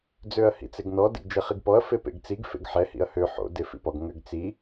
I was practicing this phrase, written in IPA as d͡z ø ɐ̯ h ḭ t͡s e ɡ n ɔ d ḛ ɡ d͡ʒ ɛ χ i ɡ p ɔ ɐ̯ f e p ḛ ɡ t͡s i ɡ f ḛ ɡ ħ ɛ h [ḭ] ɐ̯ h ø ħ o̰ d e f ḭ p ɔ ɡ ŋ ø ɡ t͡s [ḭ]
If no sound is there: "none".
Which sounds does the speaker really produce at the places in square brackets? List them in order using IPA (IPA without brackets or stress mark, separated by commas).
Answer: ḭ, i